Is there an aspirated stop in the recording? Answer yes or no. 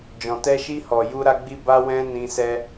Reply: no